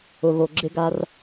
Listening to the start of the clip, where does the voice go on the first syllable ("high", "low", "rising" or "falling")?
low